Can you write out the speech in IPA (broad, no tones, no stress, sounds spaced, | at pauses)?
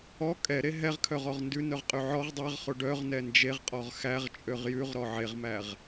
ɔ kʼ ɛ ɾ e ɦ ɛ ʁ kʰ œ ʁ ɔ ʁ n d ʉ n œ ʁ qʼ y ʕ ɔ ʁ dˤ æ ʁ χ o ɖ œ ʁ n ɛ n d͡ʒ e ʁ qʼ ɔ ʁ x æ ʁ t͡ʃʼ ø ʁ j ʉ ʁ ɾ ɔ ʕ e ʁ m æ ʁ